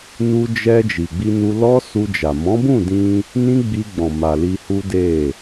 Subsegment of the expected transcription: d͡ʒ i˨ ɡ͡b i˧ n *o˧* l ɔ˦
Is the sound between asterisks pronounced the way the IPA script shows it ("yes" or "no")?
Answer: no